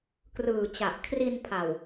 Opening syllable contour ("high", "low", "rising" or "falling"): low